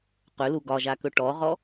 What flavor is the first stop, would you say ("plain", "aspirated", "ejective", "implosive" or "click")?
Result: plain